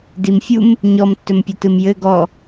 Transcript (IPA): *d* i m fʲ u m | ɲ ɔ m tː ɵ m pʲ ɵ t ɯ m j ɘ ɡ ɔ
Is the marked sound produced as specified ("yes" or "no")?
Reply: yes